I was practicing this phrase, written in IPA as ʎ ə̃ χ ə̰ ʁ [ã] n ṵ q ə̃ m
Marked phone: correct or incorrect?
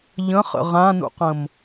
correct